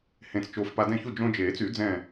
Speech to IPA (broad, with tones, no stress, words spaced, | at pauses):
hẽ˧˩t͡st͡ʃoː˧fpa˧ dɛ̃˧˩çu˧˩ d͡ʒõ˧d͡ʒeː˨˩˦t͡sy˨˩˦d͡zɛ̃ː˧˩